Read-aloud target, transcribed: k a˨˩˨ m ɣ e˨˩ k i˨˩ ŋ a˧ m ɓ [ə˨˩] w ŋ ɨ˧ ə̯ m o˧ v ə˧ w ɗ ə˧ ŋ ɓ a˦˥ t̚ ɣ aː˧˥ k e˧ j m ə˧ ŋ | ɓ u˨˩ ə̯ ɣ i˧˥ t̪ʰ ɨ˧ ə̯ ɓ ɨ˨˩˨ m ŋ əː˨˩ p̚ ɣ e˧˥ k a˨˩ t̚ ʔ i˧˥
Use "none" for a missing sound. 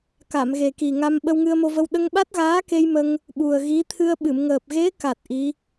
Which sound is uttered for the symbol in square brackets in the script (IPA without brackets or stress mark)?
ə˧